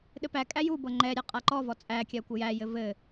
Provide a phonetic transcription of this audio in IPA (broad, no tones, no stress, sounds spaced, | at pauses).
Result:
ɗ ɘ p æ kʼ æ j u b ɤ ŋ͡ǃ ɛ ɾʲ a qʼ a ǃ ɔ v ɔ t͡sʼ æ kʲ æ kʷ ɘ j æ j ɘ v ɘ